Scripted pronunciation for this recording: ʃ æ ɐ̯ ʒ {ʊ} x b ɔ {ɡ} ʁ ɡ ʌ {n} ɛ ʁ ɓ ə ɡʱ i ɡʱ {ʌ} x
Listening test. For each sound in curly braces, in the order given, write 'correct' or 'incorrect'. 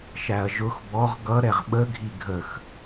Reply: correct, incorrect: none, incorrect: ɾ, incorrect: ə

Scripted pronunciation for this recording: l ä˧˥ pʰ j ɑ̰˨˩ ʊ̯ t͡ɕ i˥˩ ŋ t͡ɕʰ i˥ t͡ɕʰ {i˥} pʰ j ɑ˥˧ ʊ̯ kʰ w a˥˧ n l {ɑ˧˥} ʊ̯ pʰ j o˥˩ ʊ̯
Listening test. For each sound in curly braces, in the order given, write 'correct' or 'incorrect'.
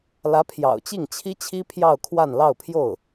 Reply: correct, incorrect: ɑ˥˧

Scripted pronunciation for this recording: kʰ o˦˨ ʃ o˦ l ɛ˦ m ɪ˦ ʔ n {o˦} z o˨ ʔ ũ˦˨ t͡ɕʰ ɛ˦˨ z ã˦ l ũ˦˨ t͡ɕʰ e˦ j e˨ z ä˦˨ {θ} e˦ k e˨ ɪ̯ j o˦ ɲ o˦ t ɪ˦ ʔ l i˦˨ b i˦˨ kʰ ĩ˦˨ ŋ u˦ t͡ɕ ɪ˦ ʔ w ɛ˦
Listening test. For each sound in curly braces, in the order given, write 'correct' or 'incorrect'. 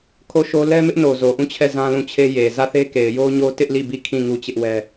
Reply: incorrect: o˨, correct

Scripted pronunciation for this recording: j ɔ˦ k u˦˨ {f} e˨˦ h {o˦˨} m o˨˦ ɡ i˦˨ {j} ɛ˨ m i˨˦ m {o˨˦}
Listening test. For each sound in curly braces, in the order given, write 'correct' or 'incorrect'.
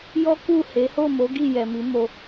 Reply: incorrect: h, correct, correct, incorrect: o˧

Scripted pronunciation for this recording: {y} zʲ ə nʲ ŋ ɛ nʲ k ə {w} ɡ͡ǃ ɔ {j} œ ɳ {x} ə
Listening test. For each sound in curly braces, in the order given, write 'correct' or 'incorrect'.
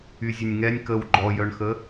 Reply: correct, correct, correct, correct

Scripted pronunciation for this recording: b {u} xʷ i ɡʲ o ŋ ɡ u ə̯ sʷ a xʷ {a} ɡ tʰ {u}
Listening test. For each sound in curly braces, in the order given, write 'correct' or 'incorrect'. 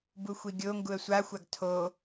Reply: correct, correct, incorrect: o

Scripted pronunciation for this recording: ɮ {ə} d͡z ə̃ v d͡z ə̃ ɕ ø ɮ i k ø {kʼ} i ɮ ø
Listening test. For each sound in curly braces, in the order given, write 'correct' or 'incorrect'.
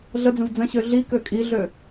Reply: correct, correct

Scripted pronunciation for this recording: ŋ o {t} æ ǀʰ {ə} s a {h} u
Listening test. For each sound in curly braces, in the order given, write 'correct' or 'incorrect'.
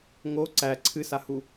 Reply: incorrect: ǀ, incorrect: ɨ, correct

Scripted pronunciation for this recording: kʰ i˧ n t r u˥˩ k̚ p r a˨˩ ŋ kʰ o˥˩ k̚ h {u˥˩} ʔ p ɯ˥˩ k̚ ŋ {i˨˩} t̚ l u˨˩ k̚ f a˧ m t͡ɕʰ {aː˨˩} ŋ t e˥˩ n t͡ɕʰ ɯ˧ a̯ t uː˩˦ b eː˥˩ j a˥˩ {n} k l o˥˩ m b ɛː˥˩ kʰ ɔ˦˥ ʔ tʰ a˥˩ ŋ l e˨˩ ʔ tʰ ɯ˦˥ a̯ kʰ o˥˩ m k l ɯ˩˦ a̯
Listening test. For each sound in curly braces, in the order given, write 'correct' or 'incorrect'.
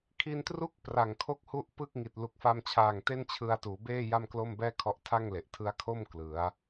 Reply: correct, correct, correct, incorrect: m

